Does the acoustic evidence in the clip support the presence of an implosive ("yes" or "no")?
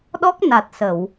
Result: yes